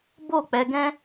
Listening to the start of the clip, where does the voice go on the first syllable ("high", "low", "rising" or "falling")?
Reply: falling